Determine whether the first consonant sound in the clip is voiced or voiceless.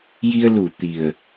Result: voiced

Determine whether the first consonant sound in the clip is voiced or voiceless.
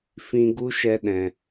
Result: voiceless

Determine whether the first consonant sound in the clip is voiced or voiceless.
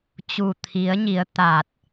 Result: voiceless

